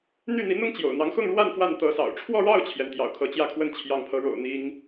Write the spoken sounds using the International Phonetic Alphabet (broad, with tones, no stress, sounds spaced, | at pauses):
n̪ y˥˩ n̪ i˧˥ n̪ ʊ˥ ŋ t͡ɕ j o̰˨˩ ʊ̯ n̪ ɑ˧˥ ŋ x ʊ˥˧ ŋ ɻ w a˥˧ n f w a˥˩ n t̪ ɤ˧˥ s ɑ̰˨˩ ʊ̯ ʈ͡ʂʰ w ɔ˥˧ ɻ ɑ˥˩ ʊ̯ t͡ɕʰ j ɛ˩ n t̪ j ɑ̰˨˩ ʊ̯ kʰ ɤ˧˥ t͡ɕ j ä˥˧ kʰ w ə˥˩ n t͡ɕʰ j ɑ˧˥ ŋ pʰ ɤ˧˥ ɻ o̰˨˩ ʊ̯ n̪ i˥ ŋ